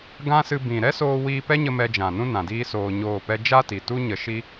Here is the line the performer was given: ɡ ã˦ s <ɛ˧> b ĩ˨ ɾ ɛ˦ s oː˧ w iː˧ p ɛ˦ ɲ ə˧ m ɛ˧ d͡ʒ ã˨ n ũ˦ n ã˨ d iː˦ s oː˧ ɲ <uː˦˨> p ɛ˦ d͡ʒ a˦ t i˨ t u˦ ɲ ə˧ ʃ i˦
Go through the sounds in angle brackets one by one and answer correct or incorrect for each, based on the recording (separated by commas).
incorrect, incorrect